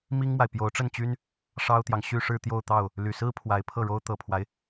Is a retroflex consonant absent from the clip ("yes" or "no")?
no